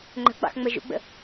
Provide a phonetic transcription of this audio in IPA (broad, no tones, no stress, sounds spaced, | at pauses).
ŋ͡ǃ ə̤ ɡ͡b ɑ̰ x ŋ͡m ə ʒ ṵ ɡ͡b ə̰